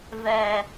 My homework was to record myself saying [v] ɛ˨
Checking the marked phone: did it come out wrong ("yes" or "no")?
no